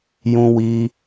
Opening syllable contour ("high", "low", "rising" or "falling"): high